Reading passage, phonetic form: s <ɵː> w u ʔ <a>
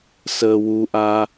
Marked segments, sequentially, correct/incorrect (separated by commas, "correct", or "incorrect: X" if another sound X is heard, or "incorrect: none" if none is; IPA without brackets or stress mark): incorrect: əː, correct